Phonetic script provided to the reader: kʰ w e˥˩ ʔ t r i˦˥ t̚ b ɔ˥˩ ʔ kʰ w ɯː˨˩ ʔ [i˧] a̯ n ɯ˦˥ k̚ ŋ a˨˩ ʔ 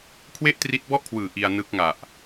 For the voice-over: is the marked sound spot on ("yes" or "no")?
yes